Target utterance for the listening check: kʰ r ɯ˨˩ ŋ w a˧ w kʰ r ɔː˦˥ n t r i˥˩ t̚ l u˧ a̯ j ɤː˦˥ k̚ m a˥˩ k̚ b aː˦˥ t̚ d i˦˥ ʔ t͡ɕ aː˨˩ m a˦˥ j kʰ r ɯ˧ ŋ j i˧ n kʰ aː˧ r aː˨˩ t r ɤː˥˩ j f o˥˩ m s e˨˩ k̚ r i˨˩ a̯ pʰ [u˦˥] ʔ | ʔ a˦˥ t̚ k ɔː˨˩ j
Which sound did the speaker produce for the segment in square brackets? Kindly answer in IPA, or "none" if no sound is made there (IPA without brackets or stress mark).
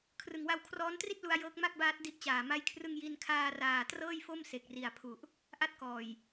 u˨˩